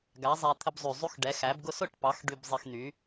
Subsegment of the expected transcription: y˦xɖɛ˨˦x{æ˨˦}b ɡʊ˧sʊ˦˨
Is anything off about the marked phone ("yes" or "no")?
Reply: no